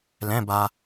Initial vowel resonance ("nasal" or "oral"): nasal